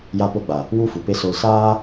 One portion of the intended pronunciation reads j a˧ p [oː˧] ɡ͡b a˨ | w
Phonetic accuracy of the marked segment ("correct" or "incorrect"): incorrect